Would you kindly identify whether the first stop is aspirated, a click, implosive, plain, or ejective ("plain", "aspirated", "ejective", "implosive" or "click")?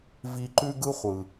click